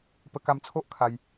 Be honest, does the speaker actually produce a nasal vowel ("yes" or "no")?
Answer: no